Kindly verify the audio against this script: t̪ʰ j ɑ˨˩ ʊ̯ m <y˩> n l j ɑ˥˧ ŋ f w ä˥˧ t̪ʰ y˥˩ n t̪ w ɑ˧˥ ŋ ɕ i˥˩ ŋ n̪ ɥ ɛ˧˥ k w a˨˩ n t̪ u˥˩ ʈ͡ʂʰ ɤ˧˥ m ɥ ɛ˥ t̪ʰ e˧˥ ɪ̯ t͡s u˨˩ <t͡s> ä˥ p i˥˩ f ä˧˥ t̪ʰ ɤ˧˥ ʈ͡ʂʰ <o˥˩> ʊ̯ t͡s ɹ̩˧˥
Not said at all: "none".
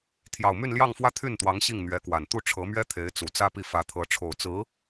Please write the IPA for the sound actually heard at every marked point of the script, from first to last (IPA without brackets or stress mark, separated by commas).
y˥˧, t͡s, o˨˩